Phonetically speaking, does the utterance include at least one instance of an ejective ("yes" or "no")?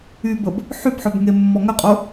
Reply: yes